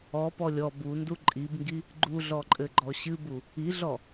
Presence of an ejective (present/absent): present